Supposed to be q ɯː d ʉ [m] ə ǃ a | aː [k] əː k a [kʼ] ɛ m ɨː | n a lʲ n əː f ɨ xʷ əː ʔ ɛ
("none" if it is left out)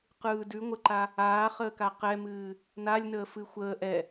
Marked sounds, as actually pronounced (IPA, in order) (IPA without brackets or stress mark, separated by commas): ŋʷ, χ, q